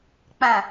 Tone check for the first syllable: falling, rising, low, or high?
low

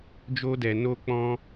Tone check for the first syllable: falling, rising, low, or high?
high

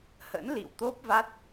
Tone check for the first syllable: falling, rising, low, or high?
rising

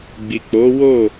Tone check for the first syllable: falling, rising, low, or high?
low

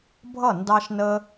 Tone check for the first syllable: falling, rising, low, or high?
falling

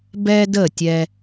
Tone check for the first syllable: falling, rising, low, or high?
high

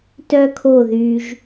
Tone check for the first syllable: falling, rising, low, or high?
high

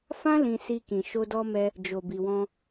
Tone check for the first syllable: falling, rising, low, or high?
high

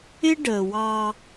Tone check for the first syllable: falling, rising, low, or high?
high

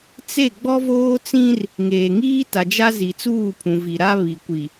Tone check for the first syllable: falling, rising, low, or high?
falling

